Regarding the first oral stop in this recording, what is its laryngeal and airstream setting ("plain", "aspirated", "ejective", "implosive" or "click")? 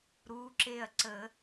click